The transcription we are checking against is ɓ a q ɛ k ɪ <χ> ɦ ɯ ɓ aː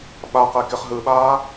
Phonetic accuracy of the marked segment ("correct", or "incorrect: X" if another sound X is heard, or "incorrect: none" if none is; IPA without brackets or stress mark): correct